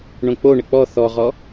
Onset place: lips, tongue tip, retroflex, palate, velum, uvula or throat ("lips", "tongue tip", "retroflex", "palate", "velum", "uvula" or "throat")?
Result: retroflex